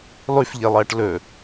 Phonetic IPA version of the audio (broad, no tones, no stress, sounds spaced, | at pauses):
lˠ ʉ f ʎ e lˠ ɐː ʈ l ɵ